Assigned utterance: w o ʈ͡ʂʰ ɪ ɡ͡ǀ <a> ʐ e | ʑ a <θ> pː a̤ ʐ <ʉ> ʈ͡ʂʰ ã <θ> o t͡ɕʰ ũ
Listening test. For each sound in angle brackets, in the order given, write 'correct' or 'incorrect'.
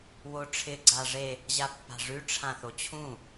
correct, incorrect: none, correct, correct

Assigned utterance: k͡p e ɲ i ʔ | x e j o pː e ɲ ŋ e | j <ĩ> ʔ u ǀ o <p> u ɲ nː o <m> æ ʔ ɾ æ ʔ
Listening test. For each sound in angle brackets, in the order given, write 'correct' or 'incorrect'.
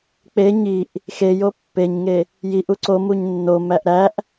incorrect: i, incorrect: m, correct

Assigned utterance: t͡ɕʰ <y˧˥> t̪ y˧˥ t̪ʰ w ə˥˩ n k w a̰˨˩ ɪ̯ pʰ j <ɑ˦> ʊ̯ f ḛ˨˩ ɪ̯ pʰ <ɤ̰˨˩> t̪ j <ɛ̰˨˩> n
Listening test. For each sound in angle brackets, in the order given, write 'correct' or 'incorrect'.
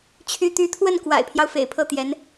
correct, correct, incorrect: ɤ˥˩, incorrect: ɛ˧˥

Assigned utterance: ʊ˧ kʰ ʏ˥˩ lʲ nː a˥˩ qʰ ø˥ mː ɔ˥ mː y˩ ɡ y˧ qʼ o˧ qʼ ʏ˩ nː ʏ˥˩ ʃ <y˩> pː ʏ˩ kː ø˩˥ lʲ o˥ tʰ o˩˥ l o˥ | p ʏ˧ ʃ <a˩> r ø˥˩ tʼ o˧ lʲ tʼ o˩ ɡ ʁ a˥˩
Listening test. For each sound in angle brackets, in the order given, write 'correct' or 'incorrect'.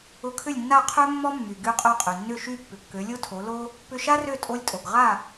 incorrect: y˥˩, incorrect: a˥

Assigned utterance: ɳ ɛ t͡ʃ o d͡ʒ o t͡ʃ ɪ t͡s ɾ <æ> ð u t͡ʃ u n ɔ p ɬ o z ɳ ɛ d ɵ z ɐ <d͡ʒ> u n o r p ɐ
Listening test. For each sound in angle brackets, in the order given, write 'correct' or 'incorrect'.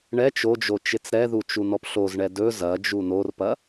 incorrect: ɛ, correct

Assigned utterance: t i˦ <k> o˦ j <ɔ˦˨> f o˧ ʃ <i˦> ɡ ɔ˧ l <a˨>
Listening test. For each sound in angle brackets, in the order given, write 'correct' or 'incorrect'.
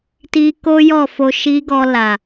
correct, correct, correct, correct

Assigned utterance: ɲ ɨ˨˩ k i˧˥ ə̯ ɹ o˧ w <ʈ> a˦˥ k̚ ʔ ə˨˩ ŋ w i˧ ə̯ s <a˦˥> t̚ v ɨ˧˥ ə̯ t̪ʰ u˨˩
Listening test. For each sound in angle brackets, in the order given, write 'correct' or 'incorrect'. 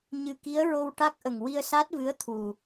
correct, correct

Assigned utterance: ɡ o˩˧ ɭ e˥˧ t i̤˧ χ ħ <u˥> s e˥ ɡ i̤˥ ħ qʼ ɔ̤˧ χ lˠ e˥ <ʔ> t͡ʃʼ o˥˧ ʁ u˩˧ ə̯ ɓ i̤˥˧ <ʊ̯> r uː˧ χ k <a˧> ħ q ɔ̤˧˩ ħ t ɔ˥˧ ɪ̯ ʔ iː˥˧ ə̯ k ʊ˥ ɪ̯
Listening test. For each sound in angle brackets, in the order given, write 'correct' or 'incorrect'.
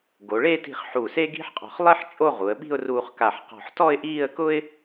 incorrect: u˧˩, incorrect: ħ, correct, incorrect: a˧˩

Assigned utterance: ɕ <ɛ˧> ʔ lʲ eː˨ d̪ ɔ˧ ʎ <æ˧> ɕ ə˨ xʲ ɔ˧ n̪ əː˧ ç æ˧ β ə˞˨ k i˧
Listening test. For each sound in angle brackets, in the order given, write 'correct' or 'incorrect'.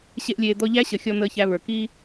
incorrect: e˧, incorrect: æ˦

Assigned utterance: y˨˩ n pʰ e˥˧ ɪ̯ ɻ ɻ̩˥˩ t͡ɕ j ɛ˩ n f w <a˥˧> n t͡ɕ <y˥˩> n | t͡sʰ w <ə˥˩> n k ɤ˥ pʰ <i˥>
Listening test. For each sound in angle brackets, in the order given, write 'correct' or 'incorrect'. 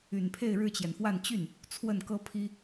correct, correct, correct, correct

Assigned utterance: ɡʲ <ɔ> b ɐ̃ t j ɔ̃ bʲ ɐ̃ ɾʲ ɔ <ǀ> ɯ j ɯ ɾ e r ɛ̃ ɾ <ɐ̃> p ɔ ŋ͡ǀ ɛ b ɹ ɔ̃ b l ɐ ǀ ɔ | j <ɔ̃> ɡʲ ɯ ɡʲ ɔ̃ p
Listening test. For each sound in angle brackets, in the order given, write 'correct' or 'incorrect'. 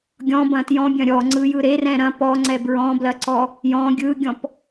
incorrect: ɔ̃, incorrect: ŋ͡ǀ, correct, correct

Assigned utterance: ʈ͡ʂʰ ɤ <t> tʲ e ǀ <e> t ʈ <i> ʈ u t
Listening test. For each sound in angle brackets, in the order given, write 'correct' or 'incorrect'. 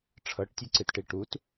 incorrect: ʈ, incorrect: ɨ, correct

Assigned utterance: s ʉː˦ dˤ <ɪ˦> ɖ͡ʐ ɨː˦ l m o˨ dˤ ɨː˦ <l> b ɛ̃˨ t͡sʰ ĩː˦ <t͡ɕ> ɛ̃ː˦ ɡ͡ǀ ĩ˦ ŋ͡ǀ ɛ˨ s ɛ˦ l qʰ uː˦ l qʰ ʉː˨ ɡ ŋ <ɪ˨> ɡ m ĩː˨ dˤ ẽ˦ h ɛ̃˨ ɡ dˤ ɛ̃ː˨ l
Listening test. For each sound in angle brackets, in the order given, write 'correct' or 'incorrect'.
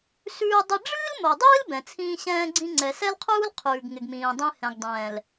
correct, correct, incorrect: ɕ, correct

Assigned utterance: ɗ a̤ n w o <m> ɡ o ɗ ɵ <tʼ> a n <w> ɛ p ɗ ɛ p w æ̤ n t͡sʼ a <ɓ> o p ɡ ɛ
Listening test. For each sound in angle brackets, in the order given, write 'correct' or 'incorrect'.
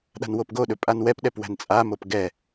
incorrect: p, incorrect: pʼ, correct, incorrect: m

